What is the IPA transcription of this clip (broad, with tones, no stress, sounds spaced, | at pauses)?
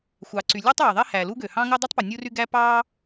xʷ ɑ˩ ǀ y˩ lʲ u˥ tˤ w e˩ ðˤ e˥ h æ˩ l u˥ ɡ ø˩ h ɑ̃˥ ŋ o˥ dˤ u˥ tˤ p o˩ nʲ u˥ r y˥ ɡ æ˥ p ɑ˥